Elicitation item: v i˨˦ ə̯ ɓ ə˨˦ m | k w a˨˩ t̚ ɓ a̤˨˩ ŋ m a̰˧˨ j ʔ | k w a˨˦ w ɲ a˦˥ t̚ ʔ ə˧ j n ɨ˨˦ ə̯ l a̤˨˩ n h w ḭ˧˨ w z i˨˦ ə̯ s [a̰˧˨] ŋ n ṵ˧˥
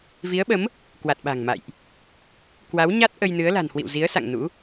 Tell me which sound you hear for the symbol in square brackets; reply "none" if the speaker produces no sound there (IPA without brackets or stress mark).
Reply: a̰˧˨